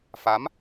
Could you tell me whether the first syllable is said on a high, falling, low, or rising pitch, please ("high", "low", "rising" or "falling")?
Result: rising